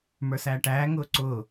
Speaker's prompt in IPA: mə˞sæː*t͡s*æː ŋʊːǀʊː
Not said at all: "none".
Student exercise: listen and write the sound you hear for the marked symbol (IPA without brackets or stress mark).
ʈ